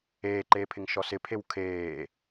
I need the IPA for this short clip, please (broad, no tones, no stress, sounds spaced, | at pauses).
eː ǃ eː pʰ ɪ ŋ ʃ ɔ s ɪ pʰ e w kʰ eː